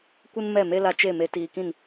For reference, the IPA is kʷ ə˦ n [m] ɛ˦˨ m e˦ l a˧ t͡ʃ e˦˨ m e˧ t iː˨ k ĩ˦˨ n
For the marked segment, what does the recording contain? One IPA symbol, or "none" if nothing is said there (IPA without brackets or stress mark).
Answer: m